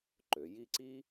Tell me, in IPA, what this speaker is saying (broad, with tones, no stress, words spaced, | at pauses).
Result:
ǃø˩˧ji˥˧ ǀi˥